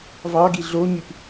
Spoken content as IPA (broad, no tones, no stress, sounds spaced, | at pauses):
v ɑ ɡ i ɮ o ɲ y p